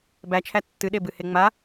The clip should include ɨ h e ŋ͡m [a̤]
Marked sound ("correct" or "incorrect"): incorrect